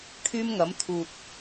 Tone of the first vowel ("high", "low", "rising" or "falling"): high